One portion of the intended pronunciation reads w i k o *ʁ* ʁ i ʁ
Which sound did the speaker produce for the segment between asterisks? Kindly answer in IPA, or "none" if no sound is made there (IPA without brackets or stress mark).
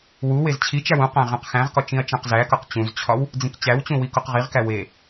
q